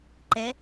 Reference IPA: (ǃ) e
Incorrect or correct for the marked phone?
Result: correct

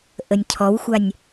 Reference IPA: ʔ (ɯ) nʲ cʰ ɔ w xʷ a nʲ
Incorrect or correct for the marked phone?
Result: incorrect: ə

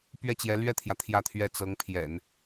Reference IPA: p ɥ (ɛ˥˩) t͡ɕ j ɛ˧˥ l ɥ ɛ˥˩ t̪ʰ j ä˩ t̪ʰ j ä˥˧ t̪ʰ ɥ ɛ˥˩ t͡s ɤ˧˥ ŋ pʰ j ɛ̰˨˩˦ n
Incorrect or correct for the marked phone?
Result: correct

